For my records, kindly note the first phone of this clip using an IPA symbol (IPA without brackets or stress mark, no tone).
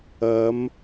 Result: ɐ